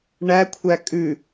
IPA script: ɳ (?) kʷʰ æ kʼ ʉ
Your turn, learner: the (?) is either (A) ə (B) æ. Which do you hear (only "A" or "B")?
B